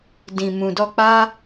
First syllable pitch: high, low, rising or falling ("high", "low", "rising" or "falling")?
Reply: low